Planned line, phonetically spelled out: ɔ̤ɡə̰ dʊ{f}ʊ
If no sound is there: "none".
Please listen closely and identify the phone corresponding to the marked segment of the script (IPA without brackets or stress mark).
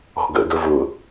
v